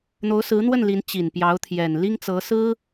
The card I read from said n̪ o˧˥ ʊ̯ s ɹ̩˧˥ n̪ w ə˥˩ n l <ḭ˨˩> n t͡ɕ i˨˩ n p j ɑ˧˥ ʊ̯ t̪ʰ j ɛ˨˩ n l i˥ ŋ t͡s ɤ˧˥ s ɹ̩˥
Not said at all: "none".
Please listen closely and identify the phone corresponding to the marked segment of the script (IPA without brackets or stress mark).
i˧˥